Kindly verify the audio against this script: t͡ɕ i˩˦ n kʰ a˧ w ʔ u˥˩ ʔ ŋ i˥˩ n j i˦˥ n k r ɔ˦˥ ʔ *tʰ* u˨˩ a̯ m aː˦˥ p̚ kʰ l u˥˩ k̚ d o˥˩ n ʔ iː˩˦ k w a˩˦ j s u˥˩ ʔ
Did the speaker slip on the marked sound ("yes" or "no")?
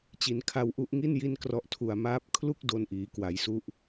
no